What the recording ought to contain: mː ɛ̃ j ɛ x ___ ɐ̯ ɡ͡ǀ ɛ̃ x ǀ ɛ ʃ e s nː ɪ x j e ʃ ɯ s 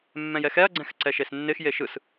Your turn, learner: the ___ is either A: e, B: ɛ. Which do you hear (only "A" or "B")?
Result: B